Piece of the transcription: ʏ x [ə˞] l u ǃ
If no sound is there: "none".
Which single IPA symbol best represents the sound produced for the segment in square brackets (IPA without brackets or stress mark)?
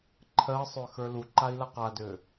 ə˞